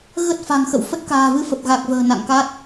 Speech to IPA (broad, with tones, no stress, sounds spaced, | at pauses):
ɣ ə˦˥ t̚ f a̤˨˩ ŋ x ə̰˧˨ w f ə˦˥ t̚ k a̤ː˨˩ v ɨ˧ f ə˨˩ p̚ ɣ a˨˩ k̚ v ə̤ː˨˩ n a̰˧˨ ŋ k a˦˥ t̚